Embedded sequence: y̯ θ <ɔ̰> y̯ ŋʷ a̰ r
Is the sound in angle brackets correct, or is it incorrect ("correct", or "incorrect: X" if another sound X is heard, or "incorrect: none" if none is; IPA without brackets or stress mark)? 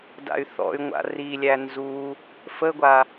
correct